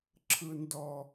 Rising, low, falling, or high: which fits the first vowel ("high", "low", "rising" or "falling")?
high